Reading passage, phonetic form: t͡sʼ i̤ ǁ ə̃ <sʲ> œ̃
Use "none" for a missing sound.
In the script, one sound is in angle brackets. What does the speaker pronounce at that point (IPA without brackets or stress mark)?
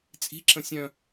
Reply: sʲ